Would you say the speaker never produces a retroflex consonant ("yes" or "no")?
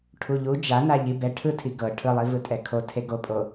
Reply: no